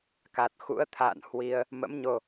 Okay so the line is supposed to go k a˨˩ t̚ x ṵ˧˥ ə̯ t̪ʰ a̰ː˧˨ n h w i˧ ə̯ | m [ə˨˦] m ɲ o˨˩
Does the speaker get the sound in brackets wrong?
yes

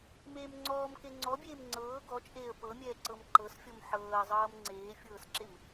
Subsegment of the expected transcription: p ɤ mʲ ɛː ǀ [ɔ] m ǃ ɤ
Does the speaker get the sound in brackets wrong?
yes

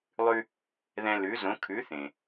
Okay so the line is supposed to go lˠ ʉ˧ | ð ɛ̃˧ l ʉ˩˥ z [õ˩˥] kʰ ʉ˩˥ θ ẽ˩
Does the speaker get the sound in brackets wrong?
no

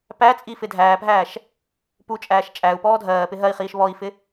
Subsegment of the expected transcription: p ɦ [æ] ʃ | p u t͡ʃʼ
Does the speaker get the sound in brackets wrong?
yes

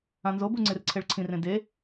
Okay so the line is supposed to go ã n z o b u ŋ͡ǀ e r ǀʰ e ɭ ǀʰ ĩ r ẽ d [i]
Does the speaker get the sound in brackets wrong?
yes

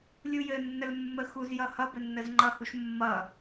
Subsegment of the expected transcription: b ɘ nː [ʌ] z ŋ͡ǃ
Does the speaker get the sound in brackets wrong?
yes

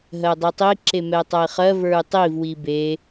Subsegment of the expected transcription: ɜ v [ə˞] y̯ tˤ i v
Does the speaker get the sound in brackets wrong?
no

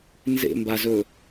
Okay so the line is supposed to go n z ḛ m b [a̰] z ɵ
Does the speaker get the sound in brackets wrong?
yes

